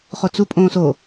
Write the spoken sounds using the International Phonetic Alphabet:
χ o t͡s u pʼ õː s o

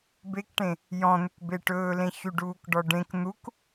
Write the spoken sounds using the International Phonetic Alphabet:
b e k ʈ ẽ | j ɔ̃ n̪ ʏ k b e ʈ ɵː l ẽ ç y ɖ uː k ɖ ɔ ɖ ẽ k n̪ u k

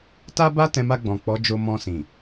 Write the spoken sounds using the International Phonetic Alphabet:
t a˦ b a˦ t ɛ̃˧ m a˧ ɡ͡b ɔ̃˨ k͡p ɔ˨˦ d͡ʒ o˧ m ɔ̃˧ s ĩ˨

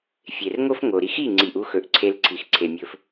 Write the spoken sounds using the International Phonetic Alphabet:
fʲ e˨ r ŋ o˦ f ŋ o˨ ɾ i˧ x i˦˨ ŋ͡ǀ i˨ ʔ u˧ x ɵ˨ ʔ ǀʰ e˧ l ǀʰ i˨ x ǀʰ e˨ mʲ ɵ˧ f

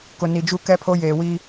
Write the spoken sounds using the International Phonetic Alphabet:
k ʊ˨ n i˨ d͡ʒ u˦ k ɛ˦ pʰ o˦ j eː˨ w i˦

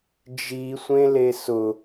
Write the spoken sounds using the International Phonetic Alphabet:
d͡ʒ i sʷ ẽ l e s ʊ

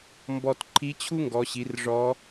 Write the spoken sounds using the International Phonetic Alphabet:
m b ɔ˧ t ǃʰ i˧˥ t͡ɕʰ u˥ ŋ ɡ ɔ˩˧ ɕ i˩˧ r ʐ ɔ˧˥

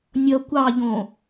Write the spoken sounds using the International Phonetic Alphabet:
nʲ ʌ kʷ ɑ ʎ õ

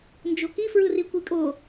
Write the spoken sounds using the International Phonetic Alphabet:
n d͡ʒ o k i f ɹ ɯ r i kʷ i kʼ o

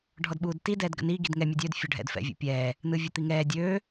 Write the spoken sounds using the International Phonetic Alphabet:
ɖʱ ɔ d ɓ uː d t i d ɛː d ɡ ə̰ n iː ɡ i d ŋ ɛ mʲ ɔ dʲ øː d fʲ o ɖʱ ɛ̰ d f ɛ̰ vʲ ṵ pʲ ɛː | n ɯː vʲ o t̪ i ŋ ɛː dʲ øː

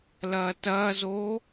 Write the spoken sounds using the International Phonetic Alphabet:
l ɐː t ɐː z oː

